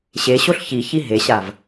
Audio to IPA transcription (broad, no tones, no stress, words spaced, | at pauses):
ɕeɕoɬ çiçi ɦeɕav